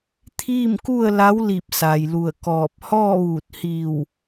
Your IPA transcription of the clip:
t̪ʰ iː˥˨ m k u˥˨ ə̯ l a˧˥ w l i˧˩ p̚ s a˩ j l u˧˩ ə̯ k ɔː˧˩ p̚ h ɔː˥˨ ʋ uː˧˩ t̚ h iː˧˩ w

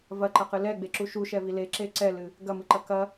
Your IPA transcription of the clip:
v ɐ ǃ ɐ q ɨ l ɛ ɡ͡b e ǁ u ʃ u ʃ ɛ v i l e ǁ e ǀ ɛ l ɨ | ɡ ɐ m ɨ ǃ ɐ k ɐ

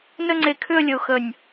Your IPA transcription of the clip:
n ə˥˧ ŋ͡ǀ e˧ kʰ ʏ˥˧ ə̯ lʲ ə˧ ʊ̯ x ə˧˩ nʲ

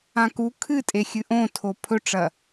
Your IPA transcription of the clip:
ã k u kʰ ɨ tʼ e xʲ ɨ ʔ õ tʰ o pʰ ɵ ʈ͡ʂ ɐ

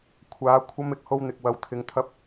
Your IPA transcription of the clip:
kʷʰ aː˨˥ kʷʰ ɐ˧ m ɪ˨ k̚ h o˧ w n̪ ɪ˨ k̚ w ɐ˨˧ w t̪ʰ ɪ˨˧ ŋ t̪ʰ ɐ˧ p̚

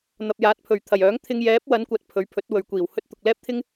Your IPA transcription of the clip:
n̪ ɐ˨ p̚ j aː˨˥ t̚ pʰ ɵ˨˩ ɥ t̪ʰ ɐ˨˩ j œː˨˥ ŋ t̪ʰ ɪ˧ ŋ j ɛː˨˥ p̚ w ɐ˨˥ n kʷ ɐ˧ t̚ pʰ ɵ˨˥ ɥ pʰ ɵ˨˥ t̚ w ɵ˨ ɥ kʷ iː˨˩ w h ɵ˥ t̚ t̪ ʊ˨ k̚ l ɛː˥ p̚ t̪ʰ ɪ˥ ŋ

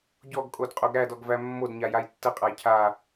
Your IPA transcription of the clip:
ɟ ɔ ɡ kʼ o d qʼ o ɡ ɾ æ d ɔ ɡ v æ mː o d ɲ a j a j tː ə qʼ a j cʰ a

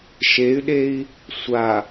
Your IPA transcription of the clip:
ʃ e y̯ ɗ e i̯ | sʷ a

